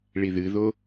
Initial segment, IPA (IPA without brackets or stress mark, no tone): ɭ